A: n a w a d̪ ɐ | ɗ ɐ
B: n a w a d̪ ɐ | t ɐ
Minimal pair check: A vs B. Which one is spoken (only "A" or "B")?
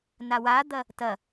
B